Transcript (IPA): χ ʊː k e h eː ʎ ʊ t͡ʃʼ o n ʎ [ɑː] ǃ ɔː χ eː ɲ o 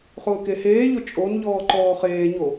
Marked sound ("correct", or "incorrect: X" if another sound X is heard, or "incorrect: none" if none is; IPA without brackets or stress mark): incorrect: ɔː